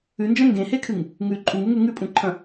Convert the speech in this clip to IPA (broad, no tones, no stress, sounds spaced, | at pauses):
ʉ n d͡ʒ ɐ̃ ŋ ɡ ẽ h e kʰ ɨ ŋ | ŋ ʉ ǃʼ u ŋ ʉ ŋ ʉ ŋ ʉ pʼ ũ ǃʰ ɐ̃